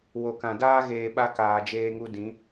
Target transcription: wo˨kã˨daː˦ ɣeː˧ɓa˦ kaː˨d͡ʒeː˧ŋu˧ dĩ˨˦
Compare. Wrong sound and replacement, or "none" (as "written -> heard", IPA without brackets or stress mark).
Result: none